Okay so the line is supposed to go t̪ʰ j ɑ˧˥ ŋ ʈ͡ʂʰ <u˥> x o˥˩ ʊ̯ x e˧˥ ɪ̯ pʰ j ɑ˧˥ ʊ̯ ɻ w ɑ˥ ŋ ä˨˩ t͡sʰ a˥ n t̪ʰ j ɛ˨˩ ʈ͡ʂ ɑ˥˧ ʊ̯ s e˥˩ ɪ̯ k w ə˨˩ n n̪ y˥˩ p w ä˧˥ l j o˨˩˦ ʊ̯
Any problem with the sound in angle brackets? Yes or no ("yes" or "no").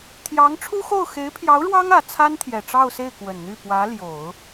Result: no